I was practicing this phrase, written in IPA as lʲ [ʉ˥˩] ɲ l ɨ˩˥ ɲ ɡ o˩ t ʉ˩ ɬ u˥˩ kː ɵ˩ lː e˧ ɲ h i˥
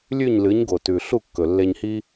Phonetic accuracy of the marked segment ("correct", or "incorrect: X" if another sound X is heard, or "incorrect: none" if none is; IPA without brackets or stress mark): correct